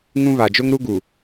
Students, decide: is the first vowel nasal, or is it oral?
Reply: nasal